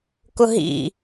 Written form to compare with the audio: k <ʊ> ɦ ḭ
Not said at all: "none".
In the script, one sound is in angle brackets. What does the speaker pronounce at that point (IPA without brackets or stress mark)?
ʊ